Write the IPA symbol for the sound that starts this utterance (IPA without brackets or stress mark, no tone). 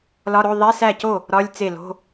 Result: l